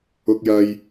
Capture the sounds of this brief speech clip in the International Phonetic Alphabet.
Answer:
ʊ˧k̚jɐ˧j

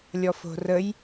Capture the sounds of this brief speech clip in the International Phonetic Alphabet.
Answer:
lʲɔfo̤rəj

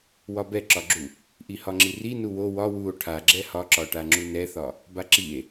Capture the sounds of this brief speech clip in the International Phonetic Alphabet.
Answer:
wɒbɛǁɒɡ͡ǁu | ʔihɒŋ͡ǁiri nuwo wɒ wuo̯ ʈʰaɡ͡ǁɛ hɒǁɒʈaŋ͡ǁu nɛθɒ | baǁie̯

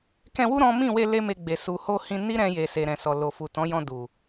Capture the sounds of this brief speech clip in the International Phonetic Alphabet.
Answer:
kɛ̃˧wu˦ ɾɔ̃˦ mĩ˦˨we˧ le˦me˧ɡ͡be˨ su˨ ho˧hĩ˧ ni˦ɾɛ̃˧je˨ se˨ɾɛ̃˨sɔ˨ lo˨fu˨tɔ̃˨˦ jɔ̃˧du˨

